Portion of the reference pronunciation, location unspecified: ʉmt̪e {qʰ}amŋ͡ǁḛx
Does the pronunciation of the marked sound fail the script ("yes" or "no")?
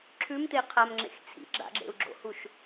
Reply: no